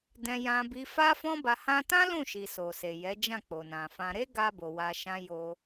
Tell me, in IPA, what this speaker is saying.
d ɛ̃˧ j ã˧ b i˧ f a˦ f ɔ̃˦ b a˧ h ã˧ t ã˦ l ũ˦˨ ʃ i˨ s o˨ s e˨ j ɛ˨˦ d͡ʒ ã˦˨ k͡p o˨ n ã˨ f ã˧ ɾ e˦ ɡ a˧ b o˨ w a˧ ʃ ã˦ j o˧

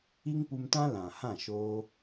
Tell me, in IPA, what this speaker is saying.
i˦ ŋ p u˧ m t ã˦ l ã˨ h ã˦˨ ʃ oː˧

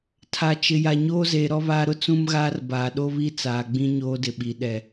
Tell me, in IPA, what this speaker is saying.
tʰ a˨ t͡ʃ ɪ˨ j a˨ ɲ oː˦ z eː˨ ɾ ɔ˦ β aː˦ ɾ ʊ˦ t͡s ũ˦ m ɣ aː˦ r b aː˨ ɗ o˦ β i˦ t͡s aː˨ ɡ͡b ĩ˦ ɲ oː˦ d ɪ˨ ɓ i˨ ɗ ɛ˨

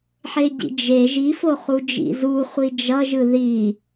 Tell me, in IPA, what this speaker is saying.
ħ e ɟ ḭ d͡ʒ e ʒ i f o χ u d͡ʒ ḭ z u χʷ i d͡ʒ ʌ ʒ ɯ ð i

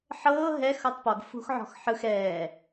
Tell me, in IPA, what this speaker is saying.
ħ ɤː ɦ ɛ x ɤ tˤ p ɔ ɡ f ṳ x ʕ ɔ̤ x ħ ɯ x ɛː

